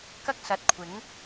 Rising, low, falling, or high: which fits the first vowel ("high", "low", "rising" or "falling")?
high